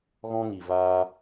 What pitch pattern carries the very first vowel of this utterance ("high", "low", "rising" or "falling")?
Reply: high